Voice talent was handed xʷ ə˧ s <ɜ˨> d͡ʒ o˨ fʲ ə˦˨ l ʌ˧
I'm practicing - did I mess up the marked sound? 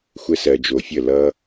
no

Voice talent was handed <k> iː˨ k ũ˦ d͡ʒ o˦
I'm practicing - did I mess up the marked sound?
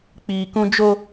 yes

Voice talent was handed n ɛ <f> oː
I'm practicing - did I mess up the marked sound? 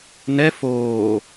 no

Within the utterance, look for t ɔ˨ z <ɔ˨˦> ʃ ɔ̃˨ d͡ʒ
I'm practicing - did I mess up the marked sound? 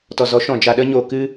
no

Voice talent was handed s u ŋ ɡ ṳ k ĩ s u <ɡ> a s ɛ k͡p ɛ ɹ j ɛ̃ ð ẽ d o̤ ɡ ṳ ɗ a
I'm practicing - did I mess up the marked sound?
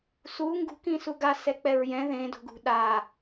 no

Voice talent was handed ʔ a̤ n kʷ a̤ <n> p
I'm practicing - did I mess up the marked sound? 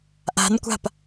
yes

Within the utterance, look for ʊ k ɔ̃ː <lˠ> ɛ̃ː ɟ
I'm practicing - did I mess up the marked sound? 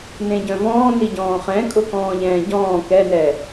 yes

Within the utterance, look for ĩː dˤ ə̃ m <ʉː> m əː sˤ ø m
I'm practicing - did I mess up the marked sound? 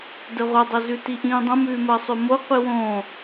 no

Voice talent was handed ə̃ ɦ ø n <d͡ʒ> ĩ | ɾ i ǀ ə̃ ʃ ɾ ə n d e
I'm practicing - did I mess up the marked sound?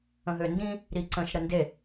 yes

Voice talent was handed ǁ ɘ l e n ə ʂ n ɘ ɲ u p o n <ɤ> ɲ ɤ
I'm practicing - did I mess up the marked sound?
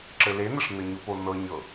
no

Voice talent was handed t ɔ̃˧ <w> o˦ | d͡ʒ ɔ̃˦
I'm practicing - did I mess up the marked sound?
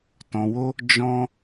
no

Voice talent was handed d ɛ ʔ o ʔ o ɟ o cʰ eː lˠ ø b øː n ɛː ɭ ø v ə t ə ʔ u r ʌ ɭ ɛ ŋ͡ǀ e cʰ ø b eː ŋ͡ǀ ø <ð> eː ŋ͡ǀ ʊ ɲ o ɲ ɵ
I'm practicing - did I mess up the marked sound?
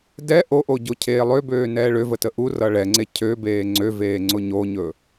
yes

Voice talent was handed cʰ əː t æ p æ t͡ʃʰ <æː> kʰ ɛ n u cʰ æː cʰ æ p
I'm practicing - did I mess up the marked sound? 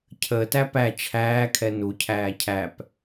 no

